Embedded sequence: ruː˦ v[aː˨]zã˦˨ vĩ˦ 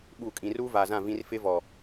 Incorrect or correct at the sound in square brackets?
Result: correct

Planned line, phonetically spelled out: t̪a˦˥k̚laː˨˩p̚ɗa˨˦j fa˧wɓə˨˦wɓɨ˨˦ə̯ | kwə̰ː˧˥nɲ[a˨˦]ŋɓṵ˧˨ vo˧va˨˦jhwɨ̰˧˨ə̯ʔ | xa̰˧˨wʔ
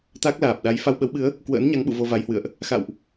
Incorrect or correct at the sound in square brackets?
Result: correct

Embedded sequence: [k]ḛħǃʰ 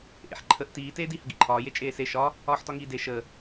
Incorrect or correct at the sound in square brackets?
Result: incorrect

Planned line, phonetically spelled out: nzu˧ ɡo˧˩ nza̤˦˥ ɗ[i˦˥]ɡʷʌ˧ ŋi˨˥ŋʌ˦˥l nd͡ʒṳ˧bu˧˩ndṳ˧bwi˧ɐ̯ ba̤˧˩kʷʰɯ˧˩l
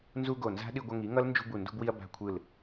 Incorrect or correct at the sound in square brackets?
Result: incorrect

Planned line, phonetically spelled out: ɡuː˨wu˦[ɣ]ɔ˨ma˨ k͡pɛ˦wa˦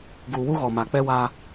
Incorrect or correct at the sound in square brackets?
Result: correct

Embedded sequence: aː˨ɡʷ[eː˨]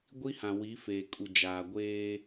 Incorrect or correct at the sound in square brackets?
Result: incorrect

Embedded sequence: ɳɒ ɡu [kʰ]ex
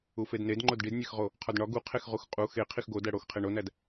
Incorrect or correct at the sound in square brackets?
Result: incorrect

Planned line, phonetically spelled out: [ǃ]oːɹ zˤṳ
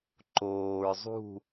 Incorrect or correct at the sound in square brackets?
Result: correct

